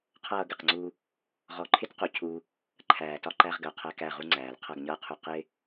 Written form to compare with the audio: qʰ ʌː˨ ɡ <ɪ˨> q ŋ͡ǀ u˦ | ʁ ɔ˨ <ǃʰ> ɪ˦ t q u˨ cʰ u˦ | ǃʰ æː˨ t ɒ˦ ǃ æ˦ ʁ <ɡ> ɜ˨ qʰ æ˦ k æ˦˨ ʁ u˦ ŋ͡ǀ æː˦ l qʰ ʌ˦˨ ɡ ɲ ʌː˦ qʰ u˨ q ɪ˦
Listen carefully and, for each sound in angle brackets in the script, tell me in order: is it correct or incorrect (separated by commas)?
correct, correct, correct